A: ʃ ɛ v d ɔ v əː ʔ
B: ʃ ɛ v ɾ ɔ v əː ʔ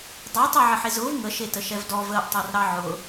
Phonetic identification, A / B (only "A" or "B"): A